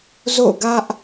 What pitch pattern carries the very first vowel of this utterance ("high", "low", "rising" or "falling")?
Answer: falling